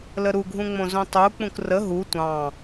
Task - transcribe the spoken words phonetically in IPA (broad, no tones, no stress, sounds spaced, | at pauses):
l ə ɾ u ɡʱ ũ ŋ͡m õ z õ tˤ u k͡p ũ k r ə ɦ u tʷ ɑ̃